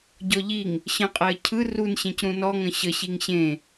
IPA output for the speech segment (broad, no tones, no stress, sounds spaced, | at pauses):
ɟ ɔ ʎ i ŋ | ɕ ə̃ qʼ æ ə̯ cʰ ɯ r u n ɕ ẽ c ɾ ũ n ɔ ŋ ə̃ ɕ ə ɕ i ŋ ɕ ẽ